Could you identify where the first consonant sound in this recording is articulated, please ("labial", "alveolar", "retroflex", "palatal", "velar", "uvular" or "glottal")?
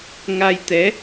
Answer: velar